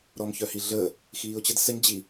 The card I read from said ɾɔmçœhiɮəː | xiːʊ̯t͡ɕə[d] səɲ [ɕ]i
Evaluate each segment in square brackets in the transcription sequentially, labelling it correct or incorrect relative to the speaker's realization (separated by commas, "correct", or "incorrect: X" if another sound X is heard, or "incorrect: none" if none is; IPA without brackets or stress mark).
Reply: correct, incorrect: d͡ʑ